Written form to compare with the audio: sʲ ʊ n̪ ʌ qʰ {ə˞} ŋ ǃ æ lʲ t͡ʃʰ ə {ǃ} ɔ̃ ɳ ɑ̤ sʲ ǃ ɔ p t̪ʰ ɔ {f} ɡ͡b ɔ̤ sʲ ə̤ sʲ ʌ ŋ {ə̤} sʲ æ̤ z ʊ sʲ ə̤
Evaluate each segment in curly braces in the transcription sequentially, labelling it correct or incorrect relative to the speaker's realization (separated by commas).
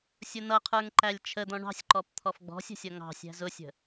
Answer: correct, incorrect, correct, incorrect